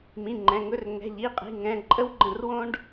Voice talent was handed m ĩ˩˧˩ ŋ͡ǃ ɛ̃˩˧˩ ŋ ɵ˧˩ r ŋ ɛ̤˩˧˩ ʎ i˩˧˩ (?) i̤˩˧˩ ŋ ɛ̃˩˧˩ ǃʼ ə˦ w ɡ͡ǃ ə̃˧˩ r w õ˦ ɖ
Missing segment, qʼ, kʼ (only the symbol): qʼ